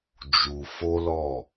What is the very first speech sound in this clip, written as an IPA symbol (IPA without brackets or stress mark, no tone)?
d͡ʒ